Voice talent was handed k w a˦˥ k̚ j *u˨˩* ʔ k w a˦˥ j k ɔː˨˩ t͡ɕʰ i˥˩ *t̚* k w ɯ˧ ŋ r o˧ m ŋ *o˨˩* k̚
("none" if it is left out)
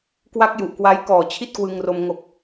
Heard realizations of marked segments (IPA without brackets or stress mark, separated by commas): u˨˩, t̚, o˨˩